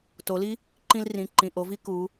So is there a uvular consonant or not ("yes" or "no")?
no